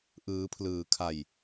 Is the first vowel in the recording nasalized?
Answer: no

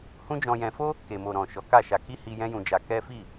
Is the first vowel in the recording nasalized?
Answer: yes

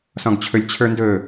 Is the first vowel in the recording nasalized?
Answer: yes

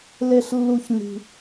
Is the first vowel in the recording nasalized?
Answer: no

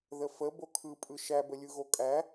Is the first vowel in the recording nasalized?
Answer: no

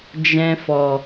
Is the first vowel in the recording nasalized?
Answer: yes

